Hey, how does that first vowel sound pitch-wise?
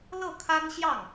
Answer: falling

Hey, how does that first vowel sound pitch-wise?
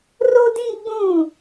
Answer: high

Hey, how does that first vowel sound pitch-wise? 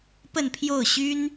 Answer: falling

